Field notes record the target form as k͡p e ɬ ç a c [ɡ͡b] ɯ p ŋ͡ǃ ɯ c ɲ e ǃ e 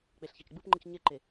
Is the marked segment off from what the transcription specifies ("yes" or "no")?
no